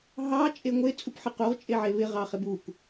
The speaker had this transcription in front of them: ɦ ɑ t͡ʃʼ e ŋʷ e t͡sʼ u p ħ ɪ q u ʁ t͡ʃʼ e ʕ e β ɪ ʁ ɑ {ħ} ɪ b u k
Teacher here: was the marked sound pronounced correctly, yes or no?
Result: no